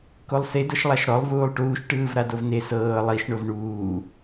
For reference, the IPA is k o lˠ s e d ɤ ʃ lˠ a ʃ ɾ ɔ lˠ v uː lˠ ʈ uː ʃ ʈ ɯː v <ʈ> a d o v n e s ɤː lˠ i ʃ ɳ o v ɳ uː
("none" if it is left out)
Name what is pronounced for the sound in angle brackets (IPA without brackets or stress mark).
ɾ